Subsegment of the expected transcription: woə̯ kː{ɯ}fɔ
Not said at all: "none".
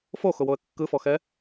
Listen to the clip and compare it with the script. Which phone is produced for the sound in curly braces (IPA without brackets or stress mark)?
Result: ɯ